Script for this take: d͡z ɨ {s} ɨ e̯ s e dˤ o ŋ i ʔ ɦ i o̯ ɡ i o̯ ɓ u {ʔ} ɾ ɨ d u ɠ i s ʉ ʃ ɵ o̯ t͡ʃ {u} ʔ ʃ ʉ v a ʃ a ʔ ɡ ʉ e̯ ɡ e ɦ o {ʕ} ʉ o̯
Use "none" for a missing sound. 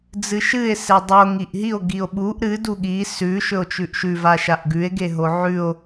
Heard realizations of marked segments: ʃ, ʔ, ʉ, ʕ

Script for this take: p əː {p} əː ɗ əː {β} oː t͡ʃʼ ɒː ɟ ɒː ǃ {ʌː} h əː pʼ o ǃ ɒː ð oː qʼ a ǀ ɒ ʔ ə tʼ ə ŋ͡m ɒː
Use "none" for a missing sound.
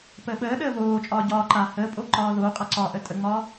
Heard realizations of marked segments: ɓ, β, aː

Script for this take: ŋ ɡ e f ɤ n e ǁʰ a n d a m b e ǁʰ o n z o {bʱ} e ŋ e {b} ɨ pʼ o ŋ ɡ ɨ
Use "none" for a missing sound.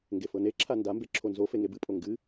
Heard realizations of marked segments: f, b

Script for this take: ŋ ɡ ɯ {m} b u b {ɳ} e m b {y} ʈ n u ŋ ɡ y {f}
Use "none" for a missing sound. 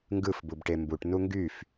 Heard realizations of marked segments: f, ʈ, u, f

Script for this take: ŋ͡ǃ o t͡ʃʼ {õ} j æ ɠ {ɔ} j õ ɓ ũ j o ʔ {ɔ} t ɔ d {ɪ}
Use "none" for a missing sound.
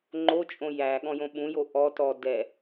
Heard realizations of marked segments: õ, ɔ̃, ɔ, ɛ

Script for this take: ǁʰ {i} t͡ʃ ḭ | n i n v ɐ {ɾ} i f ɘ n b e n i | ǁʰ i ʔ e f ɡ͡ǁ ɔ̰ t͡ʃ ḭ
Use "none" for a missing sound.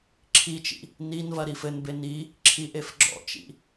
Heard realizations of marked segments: i, ɾ

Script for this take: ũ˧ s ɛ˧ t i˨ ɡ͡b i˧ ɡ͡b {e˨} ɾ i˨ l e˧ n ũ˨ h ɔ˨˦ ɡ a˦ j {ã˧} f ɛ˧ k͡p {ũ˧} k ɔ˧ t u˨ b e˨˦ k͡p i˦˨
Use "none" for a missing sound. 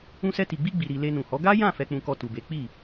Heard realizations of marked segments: i˨, ã˦˨, ũ˧

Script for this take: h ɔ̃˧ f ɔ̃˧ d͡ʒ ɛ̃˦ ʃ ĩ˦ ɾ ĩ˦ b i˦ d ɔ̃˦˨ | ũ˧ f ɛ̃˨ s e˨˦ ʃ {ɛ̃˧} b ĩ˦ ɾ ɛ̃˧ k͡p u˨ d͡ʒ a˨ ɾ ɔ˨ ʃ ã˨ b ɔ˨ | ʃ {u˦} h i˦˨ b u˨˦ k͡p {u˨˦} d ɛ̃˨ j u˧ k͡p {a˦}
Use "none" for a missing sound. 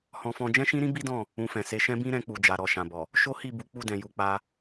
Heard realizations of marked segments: ɛ̃˦, o˦, u˦˨, a˧

